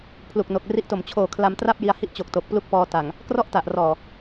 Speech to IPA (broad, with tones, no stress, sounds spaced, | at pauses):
pʰ l u˨˩ k̚ n o˨˩ k̚ r i˦˥ ʔ t o˨˩ m t͡ɕʰ oː˨˩ kʰ l a˧ m t r a˥˩ p̚ j i˧ a̯ h i˥˩ ʔ t͡ɕ o˨˩ k̚ t o˨˩ k̚ p l u˦˥ k̚ p ɔː˧ t a˨˩ ŋ | k r ɔ˥˩ ʔ t a˨˩ ʔ r ɔː˨˩